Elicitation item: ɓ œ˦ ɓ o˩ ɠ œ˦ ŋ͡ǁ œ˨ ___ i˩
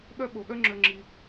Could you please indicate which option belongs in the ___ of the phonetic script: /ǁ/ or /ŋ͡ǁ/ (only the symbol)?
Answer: ŋ͡ǁ